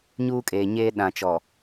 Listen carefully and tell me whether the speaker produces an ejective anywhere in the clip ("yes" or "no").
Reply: yes